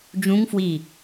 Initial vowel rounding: rounded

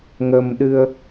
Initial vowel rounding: unrounded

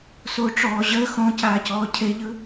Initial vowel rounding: rounded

